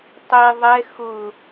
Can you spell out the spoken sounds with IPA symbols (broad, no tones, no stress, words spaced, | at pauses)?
tˤi ðˤɛ xʊ